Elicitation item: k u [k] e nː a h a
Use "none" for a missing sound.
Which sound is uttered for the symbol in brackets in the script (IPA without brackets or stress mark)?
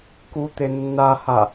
t̪